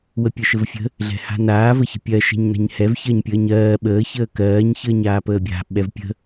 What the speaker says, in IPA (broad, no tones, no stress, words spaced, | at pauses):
wəpʲəʃəvfʲə̤ | ɮɛ̤ha̤naː vəçə̤pʲɜ ʃɛ̤ɲna̤ɲhɛv çɜɲpʲəːɲɜː ɓəː çəːkɜːɲ çəːɲaːpəːbʲa̤ ɓɛvpʲə̤